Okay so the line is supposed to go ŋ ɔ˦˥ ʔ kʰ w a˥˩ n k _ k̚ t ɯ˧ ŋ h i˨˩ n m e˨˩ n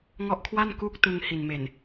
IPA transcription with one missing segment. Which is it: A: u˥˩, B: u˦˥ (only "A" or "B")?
A